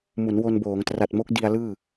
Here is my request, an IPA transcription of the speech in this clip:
m u˩˦ n w o˧ n b oː˩˦ ŋ t r a˨˩ t̚ m o˦˥ k̚ d i˧ a̯ l ɯː˥˩

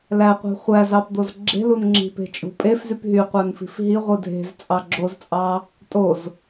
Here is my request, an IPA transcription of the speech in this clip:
l æ qʷ i̤ χʷ æ z ɑ p d̪ o z ɡ͡ǁ e̤ l u n ŋ͡ǁ i̤ p e̤ t͡ʃʼ ṳ pʼ e f z y p ɦ y qʷ æ n f i̤ f ɦ i ʁʷ ɯ dʱ e̤ z t͡sʼ ɑ ɡ͡ǁ o z t͡sʼ ɑ | tʼ o z

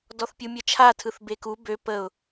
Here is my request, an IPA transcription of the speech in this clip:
d ɔ θ pʲ u mʲ ɜ t͡ʃʰ a tʰ ɯ θ b e k u b ø p ə ʊ̯

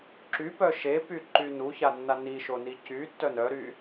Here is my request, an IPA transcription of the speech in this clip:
ǁ y p œ ʃ e p y ǃ y n u ç a nː a n i ʃ o n i c y tː œ n œ ɾ y

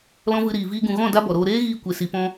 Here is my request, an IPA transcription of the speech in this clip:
l ɔ̃˦ v ɨ˧ ɾ iː˨ v iː˧ ɡ ũ˨ ɣ ɔ̃˦˨ d a˦ b ɔ˨ ɾ oː˧ ɾ eː˦ ɣ iː˧ kʷ e˨ s i˨ p ɔ̃˧

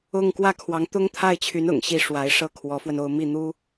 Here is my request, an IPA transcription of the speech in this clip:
ʊ˥˧ ŋ k w ä˥˩ kʰ w ɑ˧˥ ŋ t̪ ʊ˥ ŋ t̪ʰ a˥˩ ɪ̯ t͡ɕʰ y˧˥ n ʊ̰˨˩ ŋ ɕ i˥˩ ʂ w a˧˥ ɪ̯ ʂ ɤ˥˩ kʰ w ɔ˧˥ f w ə˧ n o˥˧ ʊ̯ m i˥˩ n̪ u˥

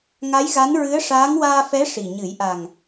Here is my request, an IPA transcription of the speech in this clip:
ŋ a˧˥ j ɣ a˧˥ n ɹ ɨ˧˥ ə̯ ʂ aː˧˥ ŋ w aː˧ f ɛ˧˥ ʂ i˨˩ ɲ ɨ˨˩˦ j ʔ a˨˩ ŋ

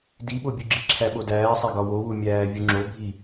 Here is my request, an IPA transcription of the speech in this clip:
d i ɓ o bʲ u ɡ͡ǁ i ǁʰ æ ɓ o d æː sˤ æ ɡ ɒ w o w u mʲ æː vʲ u ŋ͡ǁ o bʱ i

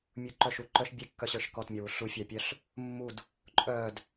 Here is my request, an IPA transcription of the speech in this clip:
mʲ u ǃ œ ʃ u ǃ œ ʃ bʲ e kː œ ɕ ə˞ ʃ k ɔ t mʲ ɔ w u ɬ u fʲ a pʲ œ ɬ | mː u d | ǃʼ œ d

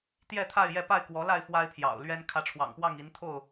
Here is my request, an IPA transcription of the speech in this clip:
t̪ j ɛ˥˨ t̪ʰ a˥˨ ɪ̯ j ɛ˥˨ p a˥˨ ɪ̯ k w ɔ˨˦ l a˥˨ ɪ̯ f w a˦ ɪ̯ pʰ j ɑ̰˨˩ ʊ̯ l ɥ ɛ˦ n kʰ ä˨˦ ʈ͡ʂʰ w ɑ̰˨˩ ŋ p w ɑ˥˨ ŋ i˨˦ n t̪ʰ o˥˨ ʊ̯

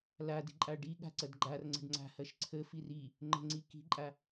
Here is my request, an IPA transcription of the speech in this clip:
l a d i̤ ǃʼ a ɖ i ɠ a̤ ǀ ɐ d ɡ͡ǃ a r ŋ͡ǀ ə̤ ɖ ŋ͡ǀ a̤ h ɐ ʃ ǀʰ ə f i r i | ŋ͡ǃ ə̤ ŋ͡ǀ i k i̤ ǃʼ a

